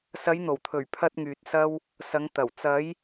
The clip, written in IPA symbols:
sɐ˨˧jn̪o˨˩wt̪ʰɵ˨˩ɥ pʰɐ˧t̚ŋyː˨t̚ sɐ˧w | sɐ˨˧ŋt̪ɐ˨˩w t͡sɐ˨˧j

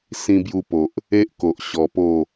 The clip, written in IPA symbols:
sĩ˧bju˧po˨ʔ | e˦ʔko˨ʔ ɕɔ˧po˥˧

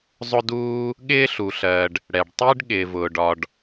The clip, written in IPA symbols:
zˤʊ˥duː˥ | ɠɪː˥ɬu˩ɬɜ˩ɖ | ɽɛ˩ɖtˤɪː˥ɖ ɠɪː˩vʊː˩ɖɒ˩ɖ

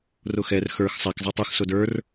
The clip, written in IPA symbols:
rʊxɛr xə˞x sˤak zˤatˤux sʊdə˞r

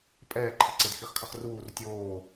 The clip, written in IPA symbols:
pʼɛːǃʰi ǀedxiχkʰʌχruːr tʲoː

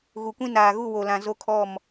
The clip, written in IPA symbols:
ɣu˨kʷĩ˦ naː˨ɣu˦˨wo˨lã˨ zo˦kʰɔ˦˨m

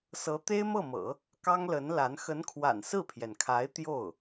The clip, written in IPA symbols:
sɤ˧˥t̪e˥ɪ̯mɤ˥˩mɤ̰˨˩˦ | kɑ˥ŋlə˧˥nla˧˥n xə˧˥nkʰwa̰˨˩n sɹ̩˥˩pʰjɛ˩nkʰa˧˥ɪ̯ t̪jo˥˩ʊ̯

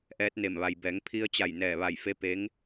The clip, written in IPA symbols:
ʔɛː˧˥t̚ne˧˩m ʋa˩jbɛː˩˧ŋ pʰi˧ə̯t͡ɕa˧˩j nɛː˧˩ʋa˧˩jfe˧˥ pe˧˥ŋ

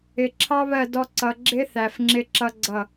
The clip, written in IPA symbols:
ɪ˨ ǁʰɑ˦βɜ˦˨ dɔ˦ǀʌ˧ ɡ͡ǁɪ˦θæ˨f ŋ͡ǁɪ˦ǁʌ˦ɡ͡ǀʌ˦˨

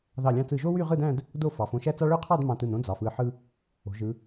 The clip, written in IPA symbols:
ðɑ˧˩lʲɑ̃˧t͡sɯ˧˩ʒo˥ wy˥˧ʁɯ˥˧dæ̃˥˧d | do˥˧fɑ˩˧f õ˧ʃæ˥t͡sɑ˥ ɭø˥˧qʰɑ˥˧d mɑ̃˧tɯ˧˩nõ˥ d͡zɑ˩˧f ɯ˧˩ħɯ˧ | o̤˩˧ʒɯ˩˧

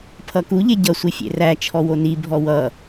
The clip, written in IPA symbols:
pʰʌku ʎeɟʌ sʷifʲḛræ t͡ʃʰɔwoni bʱɔwʌ

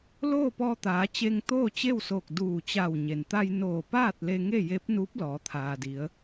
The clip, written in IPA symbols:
loː˥˨pɔː˧t̪aː˩˧t͡ɕe˧ŋ t̪oː˥˨t͡ɕe˥˨wsoː˧˩k̚ duː˧˩ t͡ɕa˧˩wɲe˩n t̪a˧j noː˧˩paː˥˨t̚ le˧ŋe˥˨je˧˥p̚nuː˧˥p̚ lɔː˩˧t̪ʰaː˩di˩˧ə̯

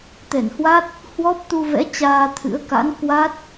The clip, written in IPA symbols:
t̪ɛ˧˩nhwa˦˥t̚ | hwɔ˦˥p̚t̪u˧vɛ̰˧˥ t͡ɕaː˧t̪ʰɨ̰˧˥ə̯ ka̰˧˥nkwa˦˥t̚

